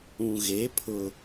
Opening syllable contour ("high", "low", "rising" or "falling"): low